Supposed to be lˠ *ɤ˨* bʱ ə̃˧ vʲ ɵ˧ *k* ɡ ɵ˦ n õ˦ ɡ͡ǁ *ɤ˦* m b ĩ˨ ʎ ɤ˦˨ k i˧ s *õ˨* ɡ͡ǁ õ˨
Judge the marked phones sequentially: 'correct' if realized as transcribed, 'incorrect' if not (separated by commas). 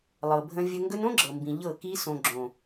correct, incorrect, incorrect, correct